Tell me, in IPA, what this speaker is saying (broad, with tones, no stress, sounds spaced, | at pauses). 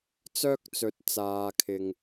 t͡s œː˥ k̚ t͡s ɵ˧ t̚ t͡s aː˧ kʰ ɪ˧ ŋ